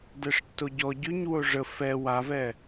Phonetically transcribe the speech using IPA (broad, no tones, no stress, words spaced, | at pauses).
dɛʂtːoɟɔ ɟyɲ woʐə fɛ wavɛ